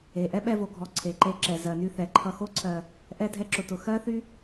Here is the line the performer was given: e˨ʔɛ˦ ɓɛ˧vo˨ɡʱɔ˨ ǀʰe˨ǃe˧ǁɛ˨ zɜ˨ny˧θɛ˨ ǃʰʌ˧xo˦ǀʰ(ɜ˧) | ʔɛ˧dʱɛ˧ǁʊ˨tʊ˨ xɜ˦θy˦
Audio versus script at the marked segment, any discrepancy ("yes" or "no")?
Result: no